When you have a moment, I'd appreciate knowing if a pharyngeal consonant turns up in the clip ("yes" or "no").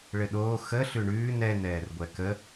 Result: no